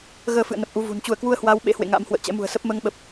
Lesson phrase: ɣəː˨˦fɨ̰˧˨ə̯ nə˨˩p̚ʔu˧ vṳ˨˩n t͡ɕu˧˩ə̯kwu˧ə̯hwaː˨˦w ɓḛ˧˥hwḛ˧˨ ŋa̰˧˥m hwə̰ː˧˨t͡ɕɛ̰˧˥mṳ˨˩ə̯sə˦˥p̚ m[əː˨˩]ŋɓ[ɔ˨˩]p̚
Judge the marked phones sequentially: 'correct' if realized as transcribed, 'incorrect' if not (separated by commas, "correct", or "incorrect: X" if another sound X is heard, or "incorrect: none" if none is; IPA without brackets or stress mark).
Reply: incorrect: əː˧, incorrect: ə˨˩